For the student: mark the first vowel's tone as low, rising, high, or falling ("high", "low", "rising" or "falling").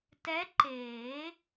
rising